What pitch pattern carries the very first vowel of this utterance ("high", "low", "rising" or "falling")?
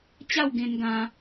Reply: falling